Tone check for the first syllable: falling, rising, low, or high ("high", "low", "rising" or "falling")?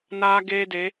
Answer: high